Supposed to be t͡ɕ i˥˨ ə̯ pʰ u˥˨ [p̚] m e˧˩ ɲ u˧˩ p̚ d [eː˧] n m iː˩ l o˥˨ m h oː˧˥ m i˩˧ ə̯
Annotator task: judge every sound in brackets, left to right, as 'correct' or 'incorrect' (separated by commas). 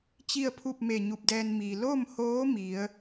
correct, incorrect